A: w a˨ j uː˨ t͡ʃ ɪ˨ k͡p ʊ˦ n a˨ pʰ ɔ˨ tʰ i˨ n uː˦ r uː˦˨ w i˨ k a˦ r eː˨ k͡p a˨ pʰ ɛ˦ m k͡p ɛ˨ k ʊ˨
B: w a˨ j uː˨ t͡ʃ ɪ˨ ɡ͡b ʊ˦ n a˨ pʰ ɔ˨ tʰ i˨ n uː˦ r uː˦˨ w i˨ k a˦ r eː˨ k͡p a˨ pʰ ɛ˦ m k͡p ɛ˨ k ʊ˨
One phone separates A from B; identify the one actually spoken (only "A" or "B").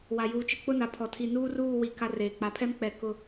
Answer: A